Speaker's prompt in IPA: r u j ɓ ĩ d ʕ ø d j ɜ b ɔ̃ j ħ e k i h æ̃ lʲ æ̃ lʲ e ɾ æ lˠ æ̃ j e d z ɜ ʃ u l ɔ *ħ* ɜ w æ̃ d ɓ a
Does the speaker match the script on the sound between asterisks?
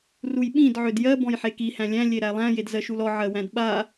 no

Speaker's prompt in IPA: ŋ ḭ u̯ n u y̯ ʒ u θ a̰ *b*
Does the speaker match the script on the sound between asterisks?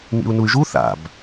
yes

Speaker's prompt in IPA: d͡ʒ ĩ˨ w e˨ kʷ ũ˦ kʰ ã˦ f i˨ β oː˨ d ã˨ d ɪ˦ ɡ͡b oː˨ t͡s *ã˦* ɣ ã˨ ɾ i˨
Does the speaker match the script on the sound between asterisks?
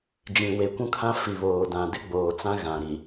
yes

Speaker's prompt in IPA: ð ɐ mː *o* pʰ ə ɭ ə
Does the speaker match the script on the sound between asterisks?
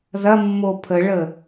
yes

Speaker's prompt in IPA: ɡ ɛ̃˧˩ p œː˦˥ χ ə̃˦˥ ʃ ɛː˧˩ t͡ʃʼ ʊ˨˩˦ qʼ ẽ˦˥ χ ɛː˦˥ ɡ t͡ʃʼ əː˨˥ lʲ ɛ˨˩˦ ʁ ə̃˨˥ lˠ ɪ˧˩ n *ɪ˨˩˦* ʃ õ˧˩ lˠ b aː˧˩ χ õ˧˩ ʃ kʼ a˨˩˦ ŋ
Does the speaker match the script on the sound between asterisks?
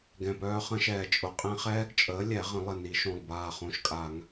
no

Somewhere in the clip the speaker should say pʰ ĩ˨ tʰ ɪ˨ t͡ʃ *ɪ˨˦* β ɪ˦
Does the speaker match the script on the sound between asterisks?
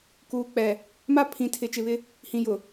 no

